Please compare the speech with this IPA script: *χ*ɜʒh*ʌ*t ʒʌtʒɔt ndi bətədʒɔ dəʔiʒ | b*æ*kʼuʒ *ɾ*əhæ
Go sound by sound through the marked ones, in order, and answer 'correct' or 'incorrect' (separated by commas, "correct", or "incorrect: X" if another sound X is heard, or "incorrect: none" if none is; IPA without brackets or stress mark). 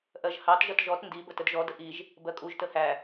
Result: incorrect: ʔ, incorrect: ɑ, incorrect: ɜ, incorrect: t